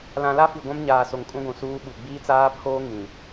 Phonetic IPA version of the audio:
l ã˨ l a˦ f i˨ ɡʷ ã˦ m ɲ aː˨ s o˨ ŋ kʼ ũ˦ ɡʷ ũ˨ s uː˦ ɓ u˨ ɡ͡b iː˦ t͡s aː˦ pʰ oː˦ ŋ ĩ˨

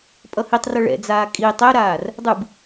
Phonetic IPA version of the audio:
pʼ ʌ h i tˤ r ʌ ɭ ɛ̰ d͡z aː kʼ i tˤ ɛ ɾ aː r | dˤ ɯ b

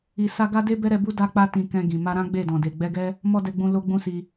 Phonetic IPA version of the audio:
i˨ s a˧ ɡ a˦ d e˦ b ɛ˦ ɾ ɛ˧ b u˦ d a˦ k͡p a˧ t ĩ˨ k ɛ̃˧ ɡ ĩ˨ m a˧ ɾ ã˦ ɡ͡b e˦˨ d ɔ̃˨ d e˨ ɡ͡b ɛ˧ ɡ ɛ˦ | m ɔ˦ d ɛ˧ ɡ͡b ũ˧ l o˧ ɡ͡b ũ˦ s i˧

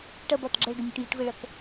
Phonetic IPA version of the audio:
ʈ ɐ b ɒ t ɡ͡ǁ ɐ ɭ ɡ ə nʲ ə ʈ j i ʈ v ə ɭ ʌ k

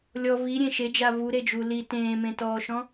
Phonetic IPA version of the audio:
lʲ ɔ v i ɾʲ ẽ ʃ e d͡ʒ a v u ɾ e d͡ʒ u l i t ẽː m ẽ t ɔː ʃ ɔ̃

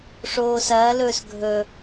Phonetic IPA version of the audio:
ʂ oː s ɐː l ɵː s ɡʱ ɵ

